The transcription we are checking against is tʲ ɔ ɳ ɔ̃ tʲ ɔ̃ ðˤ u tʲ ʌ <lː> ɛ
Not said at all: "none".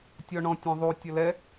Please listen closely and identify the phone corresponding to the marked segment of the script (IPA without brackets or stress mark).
l